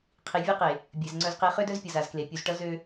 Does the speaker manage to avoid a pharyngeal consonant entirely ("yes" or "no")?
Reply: yes